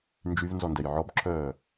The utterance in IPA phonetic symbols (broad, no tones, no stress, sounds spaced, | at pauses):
n d͡ʒ y v n z ɔ n d ɛ j ʕ ɔ b ǁʰ œː